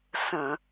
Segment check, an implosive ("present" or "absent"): absent